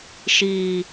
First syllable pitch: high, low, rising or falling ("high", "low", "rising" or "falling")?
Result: low